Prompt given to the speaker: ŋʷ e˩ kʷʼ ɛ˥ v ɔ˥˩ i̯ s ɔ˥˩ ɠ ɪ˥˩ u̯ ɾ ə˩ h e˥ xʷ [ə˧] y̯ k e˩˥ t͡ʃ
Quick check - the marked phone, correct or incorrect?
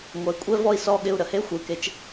incorrect